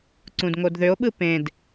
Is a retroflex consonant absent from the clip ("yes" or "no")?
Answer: yes